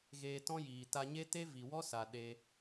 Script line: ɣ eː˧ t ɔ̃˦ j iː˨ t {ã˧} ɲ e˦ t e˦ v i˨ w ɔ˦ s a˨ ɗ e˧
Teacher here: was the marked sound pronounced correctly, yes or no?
no